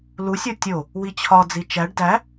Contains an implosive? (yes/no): no